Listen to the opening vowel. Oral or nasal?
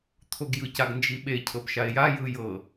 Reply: oral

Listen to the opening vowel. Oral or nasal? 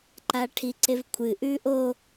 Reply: oral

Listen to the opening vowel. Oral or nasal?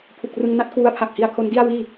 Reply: oral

